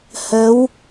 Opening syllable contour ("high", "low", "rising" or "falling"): rising